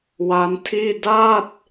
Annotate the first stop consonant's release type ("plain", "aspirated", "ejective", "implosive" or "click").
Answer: aspirated